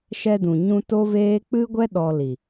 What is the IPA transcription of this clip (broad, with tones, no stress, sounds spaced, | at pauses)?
ʃ ɛ˧ d ũ˨ ɲ ũ˧ t o˦ v eː˦ k͡p ɨ˦ ɡʷ ɛ˦ ɗ ɔ˧ l i˨